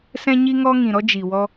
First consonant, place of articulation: alveolar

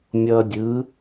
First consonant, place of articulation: labial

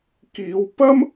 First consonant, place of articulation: velar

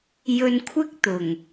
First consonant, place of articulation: palatal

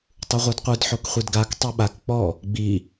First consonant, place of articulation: alveolar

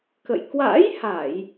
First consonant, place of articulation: velar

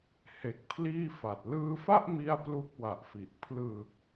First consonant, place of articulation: glottal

